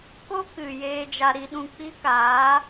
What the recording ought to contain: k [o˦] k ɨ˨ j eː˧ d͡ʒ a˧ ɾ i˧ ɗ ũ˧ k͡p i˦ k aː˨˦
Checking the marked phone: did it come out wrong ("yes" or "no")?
no